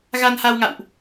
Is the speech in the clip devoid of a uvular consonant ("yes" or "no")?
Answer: yes